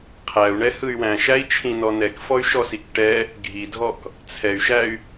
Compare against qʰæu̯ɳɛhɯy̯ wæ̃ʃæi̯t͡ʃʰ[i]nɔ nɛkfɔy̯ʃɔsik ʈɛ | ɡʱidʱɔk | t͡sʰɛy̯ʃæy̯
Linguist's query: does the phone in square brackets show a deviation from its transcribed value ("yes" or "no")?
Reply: yes